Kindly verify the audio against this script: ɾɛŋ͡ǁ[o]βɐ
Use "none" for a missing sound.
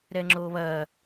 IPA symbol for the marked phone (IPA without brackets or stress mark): o